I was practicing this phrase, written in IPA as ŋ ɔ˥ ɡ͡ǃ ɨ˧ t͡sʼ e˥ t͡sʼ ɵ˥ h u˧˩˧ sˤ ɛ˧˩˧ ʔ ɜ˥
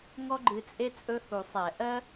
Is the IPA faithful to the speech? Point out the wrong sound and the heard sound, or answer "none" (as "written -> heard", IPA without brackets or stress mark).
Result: none